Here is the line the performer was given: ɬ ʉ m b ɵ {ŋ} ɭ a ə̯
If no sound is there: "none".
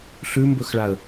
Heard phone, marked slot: x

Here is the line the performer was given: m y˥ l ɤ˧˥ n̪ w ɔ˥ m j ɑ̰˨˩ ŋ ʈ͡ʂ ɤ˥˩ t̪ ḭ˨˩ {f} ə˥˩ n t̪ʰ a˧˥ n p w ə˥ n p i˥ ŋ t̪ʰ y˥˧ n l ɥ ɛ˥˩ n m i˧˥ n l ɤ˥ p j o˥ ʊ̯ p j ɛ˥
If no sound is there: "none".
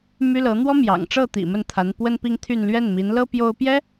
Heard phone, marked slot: m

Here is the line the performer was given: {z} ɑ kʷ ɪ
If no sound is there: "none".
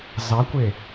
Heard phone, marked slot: z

